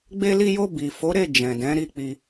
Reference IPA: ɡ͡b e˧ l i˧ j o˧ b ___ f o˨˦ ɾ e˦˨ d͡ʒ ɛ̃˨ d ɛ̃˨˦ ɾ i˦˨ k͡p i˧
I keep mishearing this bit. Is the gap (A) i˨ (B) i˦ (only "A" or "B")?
A